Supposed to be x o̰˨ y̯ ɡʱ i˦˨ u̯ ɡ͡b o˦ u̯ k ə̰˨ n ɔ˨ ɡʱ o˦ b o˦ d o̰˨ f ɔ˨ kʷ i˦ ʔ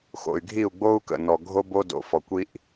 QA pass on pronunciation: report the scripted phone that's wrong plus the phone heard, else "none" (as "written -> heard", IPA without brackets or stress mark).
none